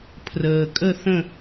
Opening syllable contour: low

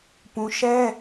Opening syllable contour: high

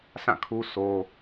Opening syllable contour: falling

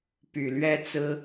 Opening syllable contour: low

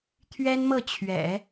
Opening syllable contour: high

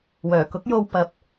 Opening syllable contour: low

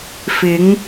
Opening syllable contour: rising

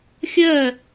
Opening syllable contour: falling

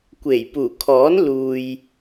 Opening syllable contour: low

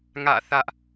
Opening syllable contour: falling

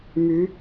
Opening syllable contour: rising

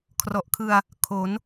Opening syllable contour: low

